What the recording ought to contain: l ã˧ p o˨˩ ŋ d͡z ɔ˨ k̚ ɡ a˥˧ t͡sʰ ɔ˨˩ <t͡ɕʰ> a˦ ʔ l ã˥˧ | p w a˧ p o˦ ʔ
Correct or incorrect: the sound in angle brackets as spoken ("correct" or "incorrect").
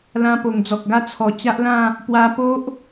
incorrect